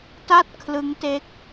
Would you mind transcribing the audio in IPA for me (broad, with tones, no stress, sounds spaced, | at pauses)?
t a˥˩ t̚ kʰ l ɯ˦˥ ŋ t e˦˥ k̚